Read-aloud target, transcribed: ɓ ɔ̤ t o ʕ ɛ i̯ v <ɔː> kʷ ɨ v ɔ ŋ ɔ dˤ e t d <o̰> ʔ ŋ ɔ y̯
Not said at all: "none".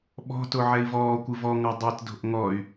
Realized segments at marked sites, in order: ɔː, o̤

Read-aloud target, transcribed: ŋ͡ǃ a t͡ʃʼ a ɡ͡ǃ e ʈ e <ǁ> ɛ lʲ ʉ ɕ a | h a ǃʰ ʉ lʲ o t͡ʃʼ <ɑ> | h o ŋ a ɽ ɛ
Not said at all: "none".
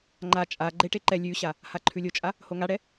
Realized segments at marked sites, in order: ǃ, a

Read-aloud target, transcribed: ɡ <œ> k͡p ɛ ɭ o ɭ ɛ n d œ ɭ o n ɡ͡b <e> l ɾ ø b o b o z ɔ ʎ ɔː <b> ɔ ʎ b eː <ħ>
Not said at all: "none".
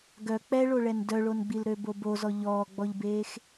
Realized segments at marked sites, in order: œ, i, ɡ͡b, x

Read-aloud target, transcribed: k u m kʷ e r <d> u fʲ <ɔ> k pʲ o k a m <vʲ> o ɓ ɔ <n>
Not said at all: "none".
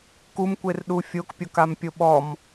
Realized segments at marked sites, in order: ɗ, o, pʲ, m

